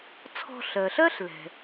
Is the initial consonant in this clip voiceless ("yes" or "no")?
yes